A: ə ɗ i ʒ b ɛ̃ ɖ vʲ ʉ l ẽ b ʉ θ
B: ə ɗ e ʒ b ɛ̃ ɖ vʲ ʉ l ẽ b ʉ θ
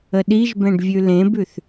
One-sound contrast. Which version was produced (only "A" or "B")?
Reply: A